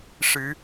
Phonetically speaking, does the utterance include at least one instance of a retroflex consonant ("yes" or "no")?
yes